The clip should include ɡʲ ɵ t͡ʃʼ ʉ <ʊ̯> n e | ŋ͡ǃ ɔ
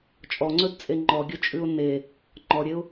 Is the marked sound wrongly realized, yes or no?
no